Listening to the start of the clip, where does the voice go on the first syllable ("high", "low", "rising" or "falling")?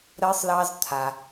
high